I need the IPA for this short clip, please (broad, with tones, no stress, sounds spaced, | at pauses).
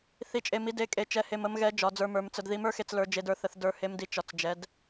θ i˨˦ t͡ʃʼ e˨ m i˨˦ d e˨˦ kʼ e˨ t͡ʃ ɛ˨˦ h e˨ m ə˨˦ m ɣ ɛ˨˦ d͡ʒ ɒ˨˦ d͡z ə˞˨˦ m ə˞˨˦ m t͡s ə˨ d ð i˨˦ m ə˞˨˦ x e˨ t͡s l ə˞˨˦ d͡ʒ e˨˦ d ə˞˨ θ ə˨˦ θ d ə˞˨˦ h e˨˦ m d i˨ t͡ʃ ɒ˨ t͡s d͡ʒ ɛ˨˦ d